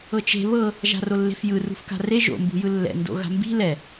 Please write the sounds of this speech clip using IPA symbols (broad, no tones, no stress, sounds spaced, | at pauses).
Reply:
ɤ t͡ʃ e̤ β ɤ | ʒ a̤ r o lː e̤ f j ɯ r ṳ f k a̤ r e ʒ o̰ m b ṳ j ɯ lː ɛ̰ n d o̰ ɣ a̤ m b i̤ l ɛ